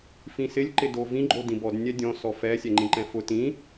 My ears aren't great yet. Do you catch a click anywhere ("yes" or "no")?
yes